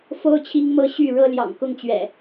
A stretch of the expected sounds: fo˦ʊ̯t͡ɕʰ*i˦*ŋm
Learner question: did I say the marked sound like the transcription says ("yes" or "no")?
yes